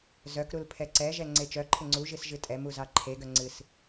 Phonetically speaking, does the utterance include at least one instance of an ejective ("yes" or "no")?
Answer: yes